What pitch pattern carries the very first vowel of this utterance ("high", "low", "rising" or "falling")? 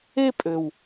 high